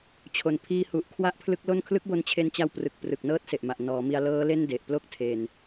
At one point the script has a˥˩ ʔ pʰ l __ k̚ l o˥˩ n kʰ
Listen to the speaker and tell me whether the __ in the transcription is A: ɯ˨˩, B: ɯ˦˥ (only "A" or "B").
B